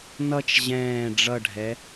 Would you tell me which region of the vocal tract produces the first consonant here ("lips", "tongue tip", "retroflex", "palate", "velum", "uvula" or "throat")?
tongue tip